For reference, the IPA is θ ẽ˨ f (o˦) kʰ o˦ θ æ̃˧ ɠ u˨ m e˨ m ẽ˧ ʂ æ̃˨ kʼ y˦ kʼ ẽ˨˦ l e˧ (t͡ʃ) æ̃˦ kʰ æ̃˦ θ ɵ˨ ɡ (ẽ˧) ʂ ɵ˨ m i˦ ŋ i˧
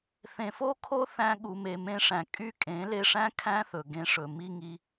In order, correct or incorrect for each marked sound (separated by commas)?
correct, incorrect, correct